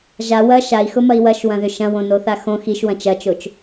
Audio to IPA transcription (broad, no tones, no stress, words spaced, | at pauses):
ʒa wɐ ʃai̯xʊmɐi̯ wɐʃwɐ̃ðʏ ʃɐ̃wõnoθa xõ xiʃwɐ̃ t͡ʃɐt͡ʃot͡ʃ